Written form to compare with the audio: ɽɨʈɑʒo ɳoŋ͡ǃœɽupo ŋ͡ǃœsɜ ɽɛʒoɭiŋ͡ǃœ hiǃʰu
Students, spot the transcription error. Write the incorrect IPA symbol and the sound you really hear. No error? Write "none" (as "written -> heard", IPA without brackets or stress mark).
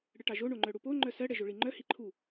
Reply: none